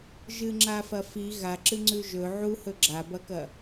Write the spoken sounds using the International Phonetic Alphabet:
ʒ ɨ ŋ͡ǁ a f ɐ f i ɣ a ǁ ɨ ŋ͡ǀ ʉ ʒ ɵ ʕ u h ɵ ɡ͡ǁ a b ɐ k ɐ

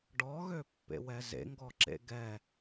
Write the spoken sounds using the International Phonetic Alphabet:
ɖ ɔ ɣ ø pː ḛ w ɛ z ḛ ŋ ɡ ɔ ǁ ḛ ɡ ɛ

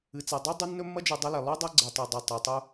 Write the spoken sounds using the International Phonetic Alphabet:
ɨ˨ t͡s e˨ dˤ e˦ dˤ u˦ nː ɵ˦ mː ɐ˦ d͡ʒ ʉ˨ dˤ ɐ˦ l e˨ lˠ o˦ dˤ ɐ˦ ɡ͡ǀ ɨ˨ tˤ o˨ dˤ ʉ˨ tˤ a˨ tˤ u˦

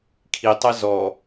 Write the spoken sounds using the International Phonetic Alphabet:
kʰ i tˤ ɜ z ɔ

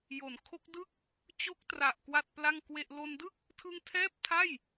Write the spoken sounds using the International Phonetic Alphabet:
j o˩˦ n kʰ o˦˥ k̚ d ɯ˥˩ k̚ | t͡ɕ o˦˥ k̚ t r a˨˩ ʔ k w a˥˩ t̚ p l a˥˩ ŋ k w e˥˩ ʔ l o˧ n d ɯ˥˩ k̚ | tʰ ɯ˧ ŋ tʰ ɛː˥˩ p̚ tʰ a˥˩ j

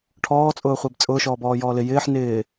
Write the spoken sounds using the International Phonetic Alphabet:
ʈʰ ɔː t͡sʼ ʊː χʷ e b t͡sʼ ʊː ʃ ɔː b ɔː j ɔː l ɪ j ɪː ħ n ɪː

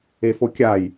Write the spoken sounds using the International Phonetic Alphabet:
e f o kʲ a j

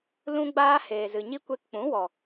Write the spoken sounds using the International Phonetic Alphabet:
l ũ˧ ɡ͡b aː˧ h eː˨ z ɨ˨ ɲ i˦ kʷ e˧ k k͡p ũ˨˦ w ɔ˨

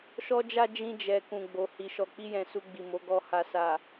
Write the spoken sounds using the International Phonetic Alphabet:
ʃ ɔ˧ d͡ʒ a˧ d͡ʒ ĩ˧ d͡ʒ ɛ˨ k ũ˨ ɡ͡b o˨ h i˨ ʃ ɔ˨ k͡p i˧ j ɛ̃˨ s u˧ ɡ͡b i˨ m o˨˦ ɡ ɔ˧ h a˨ s a˨

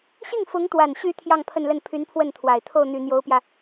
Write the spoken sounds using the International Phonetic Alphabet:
ɕ i˥˩ ŋ f ʊ˧˥ ŋ t̪ w a˨˩ n ɕ y˧˥ t̪ʰ j ɑ˥˧ ŋ pʰ ə˥˧ n l ə˥˩ n pʰ y˧˥ n pʰ w ə˥˩ n t̪ʰ w a˨˩ ɪ̯ t̪ʰ o˥˩ ʊ̯ n̪ y˨˩ n̪ j o˧˥ ʊ̯ p j ä˧

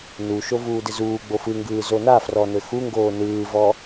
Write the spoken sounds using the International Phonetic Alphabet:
n u ʃ o v uː d ɪ z uː ɡ͡b o f ɯ ŋ ɡ ɯː z o n a f r ɔ n ɘ x u ŋ ɡ oː n ɯː v ɔ

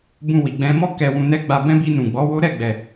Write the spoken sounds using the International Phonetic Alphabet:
b ũ˧ w i˨ ɡ͡b ɛ̃˧ m ɔ˦ k ɛ˧ w ũ˧ n ɛ˦ ɡ͡b a˧ b ɛ̃˧ b i˧ n ũ˨ ɡ͡b ɔ˨˦ w o˦ ɾ ɛ˦˨ ɡ͡b ɛ˨

